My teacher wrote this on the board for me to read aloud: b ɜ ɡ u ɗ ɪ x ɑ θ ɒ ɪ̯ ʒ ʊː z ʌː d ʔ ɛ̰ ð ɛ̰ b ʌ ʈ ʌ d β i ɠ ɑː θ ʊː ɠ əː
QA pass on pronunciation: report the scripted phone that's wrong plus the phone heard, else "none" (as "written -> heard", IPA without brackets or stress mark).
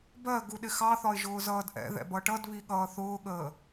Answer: ɑː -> ʌː